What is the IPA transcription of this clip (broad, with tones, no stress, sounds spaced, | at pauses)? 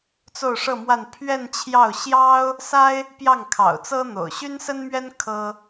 t͡s o˥˧ ʊ̯ ʂ ɤ˥˧ m w a˥˧ n pʰ ɥ ɛ˥˧ n t͡ɕʰ j ɑ˥˩ ʊ̯ ɕ j ɑ˥ ʊ̯ | s a˥ ɪ̯ | p j ɑ˥˩ ŋ kʰ ɑ̰˨˩ ʊ̯ t͡s ɤ˥ n̪ o̰˨˩ ʊ̯ ɕ y˥ n s ə˥ n m ɥ ɛ˥ n kʰ ɤ˥